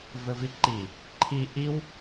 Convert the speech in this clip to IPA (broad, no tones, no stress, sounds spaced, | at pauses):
v ɘ v i ǃ i | ǃʰ i ʔ i w